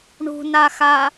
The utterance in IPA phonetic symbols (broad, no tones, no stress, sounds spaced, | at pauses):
ɳ ṳ n a x a